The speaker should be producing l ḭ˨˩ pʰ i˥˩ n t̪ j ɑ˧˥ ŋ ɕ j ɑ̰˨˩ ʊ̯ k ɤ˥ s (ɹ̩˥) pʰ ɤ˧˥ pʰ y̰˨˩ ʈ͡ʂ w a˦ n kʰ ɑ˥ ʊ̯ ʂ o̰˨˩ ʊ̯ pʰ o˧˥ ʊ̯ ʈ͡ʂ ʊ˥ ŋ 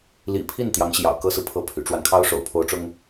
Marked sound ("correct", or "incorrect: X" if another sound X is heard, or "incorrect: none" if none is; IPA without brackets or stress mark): incorrect: ɹ̩˨